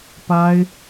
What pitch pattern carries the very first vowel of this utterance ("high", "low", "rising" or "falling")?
high